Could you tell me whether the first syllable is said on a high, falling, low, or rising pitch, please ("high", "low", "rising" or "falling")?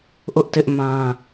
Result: high